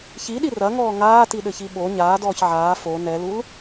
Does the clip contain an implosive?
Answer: yes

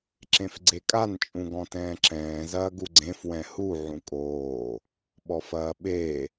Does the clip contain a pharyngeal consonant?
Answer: yes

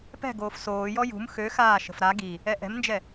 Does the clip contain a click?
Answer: no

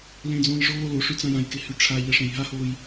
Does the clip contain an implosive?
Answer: no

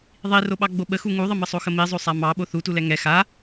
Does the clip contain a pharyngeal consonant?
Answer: no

